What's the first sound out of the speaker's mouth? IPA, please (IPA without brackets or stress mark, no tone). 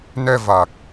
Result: n